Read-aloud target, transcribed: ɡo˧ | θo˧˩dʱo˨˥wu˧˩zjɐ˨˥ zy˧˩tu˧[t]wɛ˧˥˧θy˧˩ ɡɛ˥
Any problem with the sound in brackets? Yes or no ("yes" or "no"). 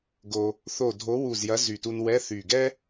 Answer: yes